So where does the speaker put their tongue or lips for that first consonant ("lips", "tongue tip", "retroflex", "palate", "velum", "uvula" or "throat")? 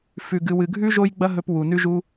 lips